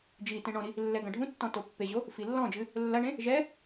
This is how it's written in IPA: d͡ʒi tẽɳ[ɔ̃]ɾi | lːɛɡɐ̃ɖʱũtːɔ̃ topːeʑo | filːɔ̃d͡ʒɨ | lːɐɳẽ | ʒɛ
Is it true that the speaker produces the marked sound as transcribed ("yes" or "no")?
yes